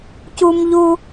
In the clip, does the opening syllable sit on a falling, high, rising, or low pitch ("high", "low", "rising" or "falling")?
high